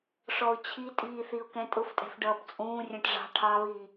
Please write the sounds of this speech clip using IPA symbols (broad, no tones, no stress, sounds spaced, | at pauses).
ʂ ɔ ʊ̯ t͡ɕʰ i tʼ iː θ i ʊ̯ k ɛ̃ tʼ ʊ f tʼ ɛ̤ f ɖ ʌː p t͡sʼ ũː rʲ ɛ̃ ʈ ʐ ɑ̤ ʈʰ ɑ β iː